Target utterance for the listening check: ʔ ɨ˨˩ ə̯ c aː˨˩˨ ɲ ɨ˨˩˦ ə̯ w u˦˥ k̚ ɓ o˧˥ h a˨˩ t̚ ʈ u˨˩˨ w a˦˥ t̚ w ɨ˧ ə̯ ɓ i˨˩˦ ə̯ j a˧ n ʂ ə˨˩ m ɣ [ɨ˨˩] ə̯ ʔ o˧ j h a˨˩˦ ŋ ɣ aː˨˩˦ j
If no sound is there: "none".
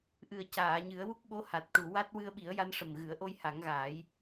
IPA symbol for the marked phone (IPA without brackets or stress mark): ɨ˨˩˦